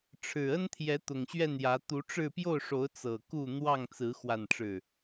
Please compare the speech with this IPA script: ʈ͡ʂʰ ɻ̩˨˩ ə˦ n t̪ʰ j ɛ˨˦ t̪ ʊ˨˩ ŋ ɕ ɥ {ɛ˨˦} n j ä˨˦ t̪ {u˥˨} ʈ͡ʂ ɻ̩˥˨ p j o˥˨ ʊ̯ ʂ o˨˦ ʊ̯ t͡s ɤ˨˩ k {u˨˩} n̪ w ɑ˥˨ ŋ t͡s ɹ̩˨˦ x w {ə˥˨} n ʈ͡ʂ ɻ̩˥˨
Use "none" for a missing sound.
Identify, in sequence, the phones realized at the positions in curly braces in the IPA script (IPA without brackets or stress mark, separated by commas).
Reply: ɛ˥˨, u˨˦, u˥˨, a˥˨